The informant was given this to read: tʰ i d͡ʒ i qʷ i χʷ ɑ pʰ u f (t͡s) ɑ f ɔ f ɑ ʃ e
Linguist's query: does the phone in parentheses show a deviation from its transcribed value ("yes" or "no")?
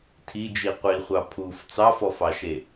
no